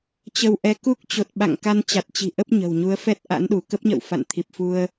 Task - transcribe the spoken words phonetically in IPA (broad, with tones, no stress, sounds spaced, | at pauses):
t͡ɕ ə˧ w ʔ ɛ˧ k u˦˥ k̚ t͡ɕ o˨˩ t̚ ɓ a̰˧˨ ŋ k a˧ n t͡ɕ a˨˩ t̚ t͡ɕ i̤˨˩ ʔ ə˦˥ p̚ ɲ ə̤˨˩ w ɲ u˨˦ ə̯ f ɛ˦˥ t̚ ʔ a̰˧˥ n ɗ u˧˩ k ə˦˥ p̚ ɲ ə̰˧˨ w f a̰˧˨ n t̪ʰ i˨˩ p̚ f u˧ ə̯